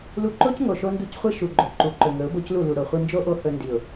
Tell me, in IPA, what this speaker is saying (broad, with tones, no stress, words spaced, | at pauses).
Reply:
lu˧ǃo˦cŋo˨ ʃo˦ndu˦cχʷi˦ ʃu˨ɡ͡ǃo˨ ǃu˨ǃɵ˨ ŋɵ˨˦ʊ̯bo˦clu˦˨ lu˨ɾo˨χʷi˧ nd͡ʒo˦ ʔo˦hɵ˧ ndi˨ʊ̯